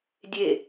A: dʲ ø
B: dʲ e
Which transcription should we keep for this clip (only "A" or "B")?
B